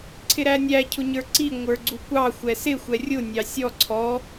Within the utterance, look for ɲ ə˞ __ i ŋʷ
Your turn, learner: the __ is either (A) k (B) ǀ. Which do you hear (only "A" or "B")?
B